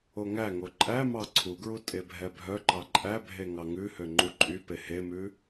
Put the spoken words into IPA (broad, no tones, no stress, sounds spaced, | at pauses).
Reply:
o ŋ æ ŋ o ǃʼ æ m ɑ ǀʰ u ɡ ɹ u tʼ e bʱ ɛ bʱ œ ǃ ɑ ǃʼ æ bʱ e ŋ ɑ ŋ ʉ h ø ŋ͡ǃ u ǃʼ y p e h e m ʉ